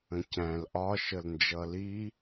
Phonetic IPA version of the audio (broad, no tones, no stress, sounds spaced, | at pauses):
ə̃ c æ̃ l ʔ ɒ ʃ ə l n d͡ʒ ʌ l i